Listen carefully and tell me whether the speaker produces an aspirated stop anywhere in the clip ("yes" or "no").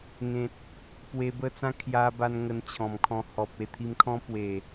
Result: yes